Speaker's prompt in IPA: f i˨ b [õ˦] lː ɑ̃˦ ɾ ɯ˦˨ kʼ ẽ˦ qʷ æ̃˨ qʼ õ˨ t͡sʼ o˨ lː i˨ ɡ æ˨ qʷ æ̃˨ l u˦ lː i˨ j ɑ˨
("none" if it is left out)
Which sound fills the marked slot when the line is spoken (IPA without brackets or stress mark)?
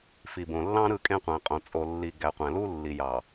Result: õ˨